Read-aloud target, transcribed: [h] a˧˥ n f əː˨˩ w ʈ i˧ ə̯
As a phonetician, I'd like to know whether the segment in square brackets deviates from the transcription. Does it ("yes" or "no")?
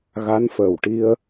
yes